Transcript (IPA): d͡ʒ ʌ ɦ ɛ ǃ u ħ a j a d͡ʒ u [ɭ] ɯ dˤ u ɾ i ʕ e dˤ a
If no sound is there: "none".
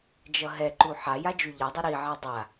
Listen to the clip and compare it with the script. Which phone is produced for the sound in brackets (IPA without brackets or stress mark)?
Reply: ʎ